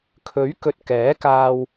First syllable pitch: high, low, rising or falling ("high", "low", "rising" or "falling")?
rising